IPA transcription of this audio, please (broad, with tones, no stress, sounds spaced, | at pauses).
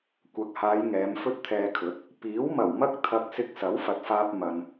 kʷ ɐ˨˥ k̚ h aː˨˧ j ŋ ɛː˨˧ m f ɵ˥ t̚ t̪ʰ ɛː˧ kʰ ɵ˨˥ t̚ | p iː˨˥ w m ɐ˨˩ w m ɐ˥ k̚ t̪ʰ ɐ˧ k̚ s ɪ˧ k̚ s ɐ˨˥ w f ɐ˨ t̚ f aː˧ p̚ m ɐ˨ n